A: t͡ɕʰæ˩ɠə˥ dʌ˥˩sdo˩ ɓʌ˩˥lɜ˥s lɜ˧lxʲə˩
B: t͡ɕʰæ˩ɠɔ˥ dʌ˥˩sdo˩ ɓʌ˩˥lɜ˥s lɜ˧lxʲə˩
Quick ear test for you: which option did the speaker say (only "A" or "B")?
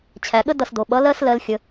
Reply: A